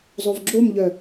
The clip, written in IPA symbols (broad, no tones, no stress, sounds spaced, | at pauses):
zˤ o v ɡ͡ǁ o m ʎ œ